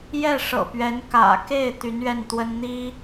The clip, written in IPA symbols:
j ɛ˥˩ ʂ ɤ̰˨˩ p ɥ ɛ˧˥ n k ä̰˨˩ k e˥˩ ɪ̯ t̪ y˧˥ n ɥ ɛ˥˩ n t̪ w ə˥ n n̪ i˥

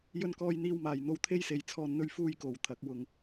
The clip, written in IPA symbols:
j ɵ˧ n k ɔː˧ j n̪ iː˧ w m aː˨ j n̪ o˧ w t̪ʰ e˥ j s e˨ j t͡sʰ ɔː˧ n n̪ ɵ˥ ɥ f uː˥ j k o˨ w t̪ʰ ɐ˨˥ k̚ w ʊ˨ ŋ

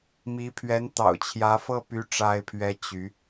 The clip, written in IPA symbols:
m i˧˥ pʰ ɥ ɛ˧˥ n t̪ ɑ̰˨˩ ʊ̯ t͡ɕʰ j ä˧˥ f ɤ˥˩ p y˥ ʈ͡ʂ a˥ ɪ̯ pʰ ɥ ɛ˥ t͡ɕ y˧˥

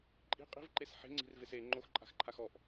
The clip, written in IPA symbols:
ǃʼ i̤ qʼ i̤ v ǃ e s ħ e̤ ŋ͡ǀ i̤ r v e s e ŋ͡ǃ o x ǃʼ a̤ x ǃʰ a x ɔ ʔ

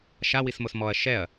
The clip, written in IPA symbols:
ʃ a w i s m o s m ɔ ɐ̯ ʃ ɛ ɐ̯

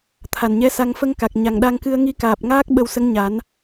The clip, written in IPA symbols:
t̪ʰ a˨˩ n ɲ ɛ˧˥ s a˧ ŋ f ə˧ ŋ k a˨˩ k̚ ɲ a˨˩ ŋ ɗ a˧ ŋ k ɨ˧ ə̯ ŋ i˧ k aː˨˩ p̚ ŋ aː˦˥ k̚ ɓ ə˧ w s ə˧˥ ŋ ɲ a˨˩˦ n

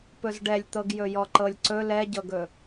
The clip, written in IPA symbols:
p ɵ z ɖ ɛ lʲ t̪ ɤ ɡ j ɵ j ɔ ǃ ɤ lʲ ǀ ɵ l ɛ ɟ ɤ ɡ ɵ

